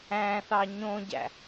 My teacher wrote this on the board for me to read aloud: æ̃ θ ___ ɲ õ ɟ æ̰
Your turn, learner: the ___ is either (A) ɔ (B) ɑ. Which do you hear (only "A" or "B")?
B